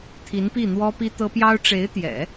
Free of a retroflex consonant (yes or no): no